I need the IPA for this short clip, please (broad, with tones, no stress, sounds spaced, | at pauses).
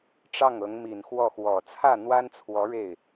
ʈ͡ʂ ɑ˥˩ ŋ ɤ˧˥ ŋ m i˨˩ n x w ɔ˥˩ x w ɔ˨˩ t͡sʰ ä˥˩ n̪ w a˥ n t͡sʰ w ɔ˧˥ ɻ e˥˩ ɪ̯